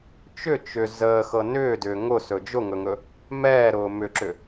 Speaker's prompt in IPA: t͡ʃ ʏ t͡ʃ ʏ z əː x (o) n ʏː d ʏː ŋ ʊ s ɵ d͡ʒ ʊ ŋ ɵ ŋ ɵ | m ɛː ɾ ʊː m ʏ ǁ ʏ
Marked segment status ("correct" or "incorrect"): incorrect